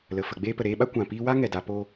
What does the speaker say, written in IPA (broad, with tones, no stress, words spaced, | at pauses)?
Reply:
lə˨fə˨ ɡ͡beː˧pə˨ɾeː˧ɓa˦ kʷã˨piː˧wa˦ ŋɛ˧da˧po˦